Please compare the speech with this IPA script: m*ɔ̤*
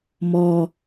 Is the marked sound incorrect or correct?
incorrect